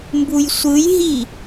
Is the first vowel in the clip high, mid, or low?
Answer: high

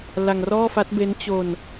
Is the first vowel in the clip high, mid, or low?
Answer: low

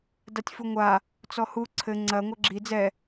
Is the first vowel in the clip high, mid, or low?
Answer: low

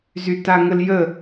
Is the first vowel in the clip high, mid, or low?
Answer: high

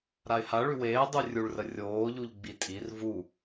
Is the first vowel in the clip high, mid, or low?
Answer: low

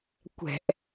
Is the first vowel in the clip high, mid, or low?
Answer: mid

